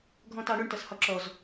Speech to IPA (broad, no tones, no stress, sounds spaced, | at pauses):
ɡʱ ɔ̃ t ɑ ɳ ʊ ɳ t ʌ s h ɒ ǁ ɔ z